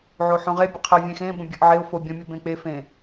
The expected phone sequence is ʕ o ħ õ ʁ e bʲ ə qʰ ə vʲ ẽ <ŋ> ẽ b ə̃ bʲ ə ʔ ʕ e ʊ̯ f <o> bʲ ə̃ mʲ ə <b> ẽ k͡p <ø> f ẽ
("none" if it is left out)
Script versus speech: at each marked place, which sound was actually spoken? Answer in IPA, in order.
x, o, b, e

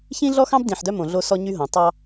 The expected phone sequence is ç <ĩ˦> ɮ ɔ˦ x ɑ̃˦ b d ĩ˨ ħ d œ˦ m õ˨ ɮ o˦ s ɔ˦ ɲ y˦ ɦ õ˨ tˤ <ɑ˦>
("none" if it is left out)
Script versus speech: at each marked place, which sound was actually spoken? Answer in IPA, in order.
ĩ˦, ɑ˦

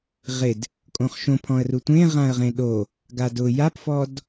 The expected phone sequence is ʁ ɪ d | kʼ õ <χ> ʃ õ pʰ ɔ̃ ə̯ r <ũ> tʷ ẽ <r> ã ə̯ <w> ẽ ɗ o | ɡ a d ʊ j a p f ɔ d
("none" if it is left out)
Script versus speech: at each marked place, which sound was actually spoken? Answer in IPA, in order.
χ, u, ʁ, ʁ

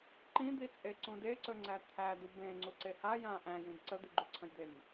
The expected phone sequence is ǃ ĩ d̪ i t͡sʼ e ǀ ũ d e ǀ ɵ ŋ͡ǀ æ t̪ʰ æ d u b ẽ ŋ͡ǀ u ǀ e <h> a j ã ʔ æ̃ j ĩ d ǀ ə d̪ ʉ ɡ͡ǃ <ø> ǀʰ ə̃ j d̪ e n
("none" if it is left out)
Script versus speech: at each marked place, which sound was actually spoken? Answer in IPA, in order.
h, ʉ

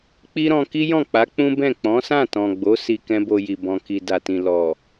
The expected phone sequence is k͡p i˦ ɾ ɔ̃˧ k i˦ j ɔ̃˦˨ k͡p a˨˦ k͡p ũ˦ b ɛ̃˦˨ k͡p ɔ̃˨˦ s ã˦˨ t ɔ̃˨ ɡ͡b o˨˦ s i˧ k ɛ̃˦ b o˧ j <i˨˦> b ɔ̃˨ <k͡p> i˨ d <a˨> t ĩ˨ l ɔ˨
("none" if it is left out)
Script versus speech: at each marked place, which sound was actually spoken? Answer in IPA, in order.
i˨, k, a˨

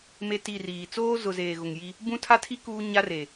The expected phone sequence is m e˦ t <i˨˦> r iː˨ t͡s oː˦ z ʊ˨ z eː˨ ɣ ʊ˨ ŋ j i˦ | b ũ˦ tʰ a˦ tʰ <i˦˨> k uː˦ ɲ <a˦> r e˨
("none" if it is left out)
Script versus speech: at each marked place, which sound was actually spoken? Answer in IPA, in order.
i˦˨, i˦, a˦

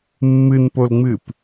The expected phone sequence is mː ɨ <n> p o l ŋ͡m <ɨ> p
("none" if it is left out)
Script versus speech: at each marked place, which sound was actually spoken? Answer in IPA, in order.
n, ɨ

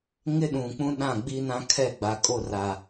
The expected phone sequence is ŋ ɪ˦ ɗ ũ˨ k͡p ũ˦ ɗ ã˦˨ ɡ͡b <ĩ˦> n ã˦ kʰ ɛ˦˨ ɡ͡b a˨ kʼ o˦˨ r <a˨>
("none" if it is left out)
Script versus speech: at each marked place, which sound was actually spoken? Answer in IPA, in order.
i˦, a˨

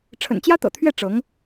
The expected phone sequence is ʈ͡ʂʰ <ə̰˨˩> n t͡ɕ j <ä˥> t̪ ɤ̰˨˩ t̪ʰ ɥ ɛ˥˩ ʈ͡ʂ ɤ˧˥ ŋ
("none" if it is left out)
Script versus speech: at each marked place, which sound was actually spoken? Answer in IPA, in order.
ə̰˨˩, ä˥

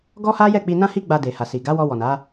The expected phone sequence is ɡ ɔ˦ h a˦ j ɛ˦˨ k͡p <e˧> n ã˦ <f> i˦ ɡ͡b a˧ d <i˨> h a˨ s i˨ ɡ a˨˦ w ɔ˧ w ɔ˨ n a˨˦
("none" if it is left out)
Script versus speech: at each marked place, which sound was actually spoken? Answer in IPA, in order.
i˧, h, e˨

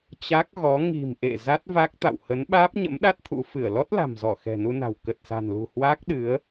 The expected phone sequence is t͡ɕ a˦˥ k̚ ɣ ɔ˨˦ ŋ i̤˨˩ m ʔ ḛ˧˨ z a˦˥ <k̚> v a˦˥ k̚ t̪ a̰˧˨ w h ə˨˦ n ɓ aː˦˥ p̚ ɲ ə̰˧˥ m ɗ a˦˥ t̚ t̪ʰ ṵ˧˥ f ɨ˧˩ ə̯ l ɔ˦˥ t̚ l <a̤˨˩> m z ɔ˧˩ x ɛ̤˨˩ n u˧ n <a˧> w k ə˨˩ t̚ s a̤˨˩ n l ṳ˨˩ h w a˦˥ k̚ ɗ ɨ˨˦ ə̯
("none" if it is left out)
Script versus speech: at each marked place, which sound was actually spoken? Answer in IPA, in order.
t̚, a̤˨˩, a̤˨˩

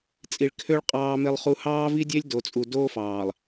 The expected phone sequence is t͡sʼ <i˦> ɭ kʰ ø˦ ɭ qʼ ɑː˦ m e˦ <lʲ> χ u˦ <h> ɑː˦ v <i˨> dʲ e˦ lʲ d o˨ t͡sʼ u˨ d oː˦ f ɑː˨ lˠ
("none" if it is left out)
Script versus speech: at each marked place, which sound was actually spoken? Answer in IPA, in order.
i˨, lˠ, h, i˦

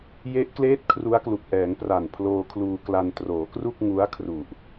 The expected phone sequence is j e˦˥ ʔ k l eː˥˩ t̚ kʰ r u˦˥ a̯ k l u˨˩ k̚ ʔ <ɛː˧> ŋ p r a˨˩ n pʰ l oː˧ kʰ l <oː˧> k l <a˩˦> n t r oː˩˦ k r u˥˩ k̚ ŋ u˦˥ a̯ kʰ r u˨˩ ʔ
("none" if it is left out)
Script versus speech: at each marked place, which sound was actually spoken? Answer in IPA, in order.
ɛː˩˦, uː˧, a˧

